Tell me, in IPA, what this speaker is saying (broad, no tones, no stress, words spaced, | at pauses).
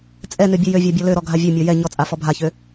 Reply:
t͡sʼɛ nøbʲɛjøvʲa bʲɔløɾɔ ɡʱavʲømʲɔ jɛ ɲɔt͡sʼa fɔbʱaçø